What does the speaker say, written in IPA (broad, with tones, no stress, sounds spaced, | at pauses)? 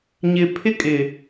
ɲ ɪ˨ pʰ ɪ˦ kʼ ɪ˨